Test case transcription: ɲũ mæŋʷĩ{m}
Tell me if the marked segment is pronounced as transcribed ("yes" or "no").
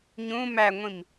yes